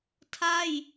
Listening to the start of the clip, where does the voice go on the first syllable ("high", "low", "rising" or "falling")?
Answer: falling